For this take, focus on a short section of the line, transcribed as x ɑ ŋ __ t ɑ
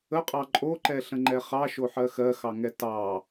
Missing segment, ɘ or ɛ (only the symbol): ɛ